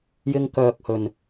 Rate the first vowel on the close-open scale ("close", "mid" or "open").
close